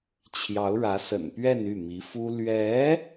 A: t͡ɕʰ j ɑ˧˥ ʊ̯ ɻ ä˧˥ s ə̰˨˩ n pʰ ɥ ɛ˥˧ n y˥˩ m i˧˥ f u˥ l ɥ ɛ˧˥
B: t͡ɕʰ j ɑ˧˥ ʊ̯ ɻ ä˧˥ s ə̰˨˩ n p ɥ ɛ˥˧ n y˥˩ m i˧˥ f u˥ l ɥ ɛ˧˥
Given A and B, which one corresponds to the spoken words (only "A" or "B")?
B